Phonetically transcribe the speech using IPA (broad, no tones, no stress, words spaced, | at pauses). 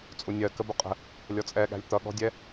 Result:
t͡sʼunʲɜ kəbʊqʼə̤ | lʲɔt͡sʼɛɠæ̤lʲ t̪ʌɠɔ̤dʲɛ